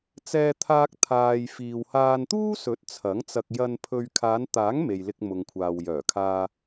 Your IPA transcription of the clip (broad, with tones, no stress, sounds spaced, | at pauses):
t͡s ɛː˧ t̪ʰ aː˧ k̚ t̪ʰ aː˧ j f iː˨ w h aː˧ n t̪ uː˥ s ɵ˨˥ t̚ t͡sʰ ɐ˨˥ ŋ t͡s ɐ˧ k̚ j ɐ˧ n pʰ ɵ˧ ɥ kʰ aː˨˧ n t̪ aː˨˥ ŋ m e˨ j l ɪ˧ k̚ m ʊ˨ ŋ kʷʰ aː˨ w j œː˨˩ kʰ aː˧